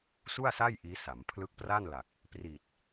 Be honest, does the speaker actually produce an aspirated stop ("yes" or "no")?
yes